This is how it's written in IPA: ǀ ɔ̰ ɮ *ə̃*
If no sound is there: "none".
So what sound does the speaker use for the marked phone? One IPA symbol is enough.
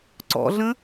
ə̃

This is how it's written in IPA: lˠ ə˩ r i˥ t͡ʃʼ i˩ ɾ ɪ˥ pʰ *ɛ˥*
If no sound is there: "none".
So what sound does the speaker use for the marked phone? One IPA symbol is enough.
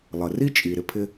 ɪ˥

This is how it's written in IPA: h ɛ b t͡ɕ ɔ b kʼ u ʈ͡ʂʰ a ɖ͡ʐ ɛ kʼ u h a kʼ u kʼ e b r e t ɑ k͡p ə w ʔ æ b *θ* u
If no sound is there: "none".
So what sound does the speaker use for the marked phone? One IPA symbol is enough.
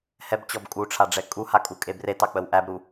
ɾ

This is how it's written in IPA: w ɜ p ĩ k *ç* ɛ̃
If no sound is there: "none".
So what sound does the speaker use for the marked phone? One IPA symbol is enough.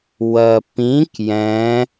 j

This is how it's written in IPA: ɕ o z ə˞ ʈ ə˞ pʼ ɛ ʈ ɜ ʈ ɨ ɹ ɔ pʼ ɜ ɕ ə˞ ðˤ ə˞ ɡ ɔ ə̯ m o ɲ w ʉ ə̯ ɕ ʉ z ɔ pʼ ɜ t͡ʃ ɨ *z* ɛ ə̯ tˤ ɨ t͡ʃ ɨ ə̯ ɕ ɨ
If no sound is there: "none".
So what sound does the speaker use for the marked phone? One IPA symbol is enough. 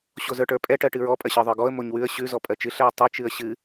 ɬ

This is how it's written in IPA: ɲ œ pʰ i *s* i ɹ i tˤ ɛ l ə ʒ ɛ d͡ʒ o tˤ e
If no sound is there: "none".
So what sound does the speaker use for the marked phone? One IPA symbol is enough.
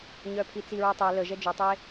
t͡s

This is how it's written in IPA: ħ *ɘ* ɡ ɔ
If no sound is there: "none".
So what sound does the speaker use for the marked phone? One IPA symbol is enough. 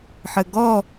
ɘ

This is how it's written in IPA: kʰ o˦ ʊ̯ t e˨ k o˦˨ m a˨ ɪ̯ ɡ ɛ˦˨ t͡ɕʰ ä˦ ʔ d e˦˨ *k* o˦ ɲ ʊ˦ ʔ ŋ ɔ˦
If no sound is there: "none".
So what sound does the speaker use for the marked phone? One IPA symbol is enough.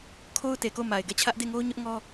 ŋ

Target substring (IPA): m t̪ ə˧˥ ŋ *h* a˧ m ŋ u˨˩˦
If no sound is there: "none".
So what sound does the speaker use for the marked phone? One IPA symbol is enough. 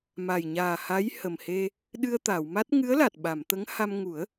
h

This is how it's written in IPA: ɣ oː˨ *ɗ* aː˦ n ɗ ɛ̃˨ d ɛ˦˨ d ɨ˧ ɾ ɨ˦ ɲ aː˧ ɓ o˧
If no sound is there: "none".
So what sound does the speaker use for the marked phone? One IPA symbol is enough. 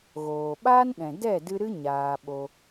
ɓ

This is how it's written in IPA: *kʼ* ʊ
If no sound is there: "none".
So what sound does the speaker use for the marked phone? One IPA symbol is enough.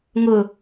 ŋ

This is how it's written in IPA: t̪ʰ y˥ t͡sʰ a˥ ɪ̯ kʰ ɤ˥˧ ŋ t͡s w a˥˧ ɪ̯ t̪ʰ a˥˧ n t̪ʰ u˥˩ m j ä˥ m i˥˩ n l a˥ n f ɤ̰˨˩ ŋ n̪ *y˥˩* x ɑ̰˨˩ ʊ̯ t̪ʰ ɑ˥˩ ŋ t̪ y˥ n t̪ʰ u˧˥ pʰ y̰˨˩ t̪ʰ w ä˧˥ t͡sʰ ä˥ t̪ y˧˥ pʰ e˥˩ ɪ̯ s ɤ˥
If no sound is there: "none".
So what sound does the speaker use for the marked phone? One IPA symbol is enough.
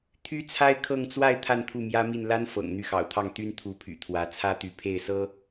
y˥˩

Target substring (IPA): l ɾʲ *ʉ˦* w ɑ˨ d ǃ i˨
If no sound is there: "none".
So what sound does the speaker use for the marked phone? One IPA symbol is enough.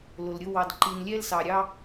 ʊ˦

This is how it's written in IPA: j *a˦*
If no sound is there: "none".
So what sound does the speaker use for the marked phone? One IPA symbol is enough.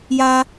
a˦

